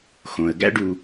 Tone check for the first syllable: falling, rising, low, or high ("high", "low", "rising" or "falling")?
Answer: low